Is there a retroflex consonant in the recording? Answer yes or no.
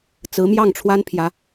yes